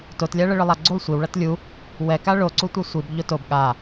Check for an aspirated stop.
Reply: absent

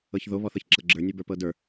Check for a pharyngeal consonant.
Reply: absent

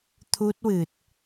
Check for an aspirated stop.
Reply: present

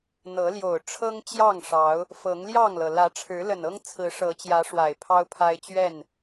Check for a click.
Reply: absent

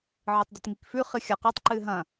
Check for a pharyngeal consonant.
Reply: present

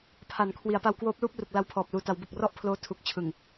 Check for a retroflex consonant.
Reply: absent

